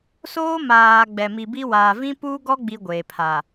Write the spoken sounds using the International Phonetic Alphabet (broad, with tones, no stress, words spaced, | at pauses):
soː˦maː˨ ɡ͡bɛ˨ mi˨bi˦ waː˨vĩ˦ puː˦ɡɔ˦ ɡ͡bi˦ɡʷeː˨pʰa˨